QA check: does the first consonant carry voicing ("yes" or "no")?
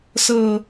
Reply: no